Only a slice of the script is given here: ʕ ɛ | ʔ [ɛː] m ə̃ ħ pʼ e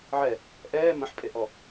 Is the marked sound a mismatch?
no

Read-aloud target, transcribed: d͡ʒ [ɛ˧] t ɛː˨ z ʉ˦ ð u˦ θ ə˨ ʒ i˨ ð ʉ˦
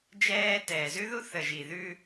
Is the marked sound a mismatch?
yes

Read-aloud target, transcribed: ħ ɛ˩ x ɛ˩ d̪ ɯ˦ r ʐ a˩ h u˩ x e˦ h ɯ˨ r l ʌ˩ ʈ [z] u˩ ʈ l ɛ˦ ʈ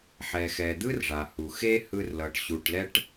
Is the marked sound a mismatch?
yes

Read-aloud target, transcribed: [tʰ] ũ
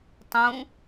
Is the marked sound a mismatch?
yes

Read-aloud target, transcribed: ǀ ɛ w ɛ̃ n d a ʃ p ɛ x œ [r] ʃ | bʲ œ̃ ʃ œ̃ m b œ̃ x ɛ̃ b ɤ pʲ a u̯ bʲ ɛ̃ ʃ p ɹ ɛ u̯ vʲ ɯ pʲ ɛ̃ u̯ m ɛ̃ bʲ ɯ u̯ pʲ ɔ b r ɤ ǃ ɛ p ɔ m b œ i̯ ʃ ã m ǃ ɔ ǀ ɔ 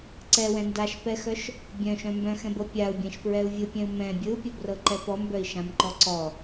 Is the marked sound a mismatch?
yes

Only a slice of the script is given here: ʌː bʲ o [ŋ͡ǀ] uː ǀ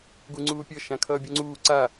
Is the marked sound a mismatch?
no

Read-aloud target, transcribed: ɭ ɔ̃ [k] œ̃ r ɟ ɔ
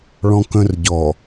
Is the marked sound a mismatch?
no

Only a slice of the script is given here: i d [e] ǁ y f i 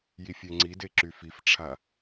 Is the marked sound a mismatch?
no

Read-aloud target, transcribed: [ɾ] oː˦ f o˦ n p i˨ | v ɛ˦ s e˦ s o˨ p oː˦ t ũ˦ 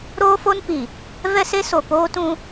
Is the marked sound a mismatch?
no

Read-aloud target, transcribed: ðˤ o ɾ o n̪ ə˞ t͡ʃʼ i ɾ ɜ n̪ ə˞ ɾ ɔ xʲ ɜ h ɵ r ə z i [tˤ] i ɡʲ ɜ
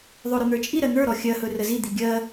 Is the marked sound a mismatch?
yes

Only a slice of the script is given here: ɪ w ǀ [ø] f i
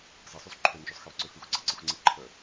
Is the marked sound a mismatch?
no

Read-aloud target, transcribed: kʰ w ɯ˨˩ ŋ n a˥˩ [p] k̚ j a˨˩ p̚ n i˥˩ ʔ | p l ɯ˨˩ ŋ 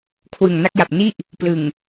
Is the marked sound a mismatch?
yes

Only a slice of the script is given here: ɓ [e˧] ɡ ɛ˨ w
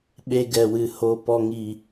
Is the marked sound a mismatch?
no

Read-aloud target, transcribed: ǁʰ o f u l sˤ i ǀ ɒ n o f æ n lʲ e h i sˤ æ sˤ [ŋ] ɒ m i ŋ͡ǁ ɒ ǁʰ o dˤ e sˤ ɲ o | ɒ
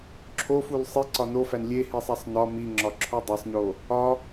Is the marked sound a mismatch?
yes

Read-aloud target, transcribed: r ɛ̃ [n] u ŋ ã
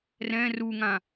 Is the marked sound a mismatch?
yes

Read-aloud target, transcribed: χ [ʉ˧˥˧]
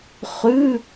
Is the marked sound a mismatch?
no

